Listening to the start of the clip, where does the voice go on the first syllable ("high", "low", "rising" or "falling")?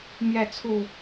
falling